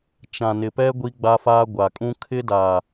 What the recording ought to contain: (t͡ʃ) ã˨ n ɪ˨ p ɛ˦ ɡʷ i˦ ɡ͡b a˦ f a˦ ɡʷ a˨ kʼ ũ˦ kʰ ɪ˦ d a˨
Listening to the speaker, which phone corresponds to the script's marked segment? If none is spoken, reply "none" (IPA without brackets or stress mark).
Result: t͡ʃ